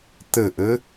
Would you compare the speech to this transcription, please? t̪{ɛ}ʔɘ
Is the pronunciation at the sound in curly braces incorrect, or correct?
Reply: incorrect